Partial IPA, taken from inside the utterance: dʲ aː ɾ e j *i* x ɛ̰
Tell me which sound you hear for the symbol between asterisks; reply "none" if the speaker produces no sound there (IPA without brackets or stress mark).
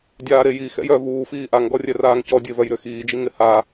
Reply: i